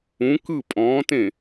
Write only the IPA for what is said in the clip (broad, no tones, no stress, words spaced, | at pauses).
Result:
ũ kɯ pʼɔ̃ːtẽ